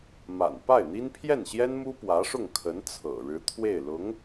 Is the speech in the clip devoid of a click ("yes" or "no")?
yes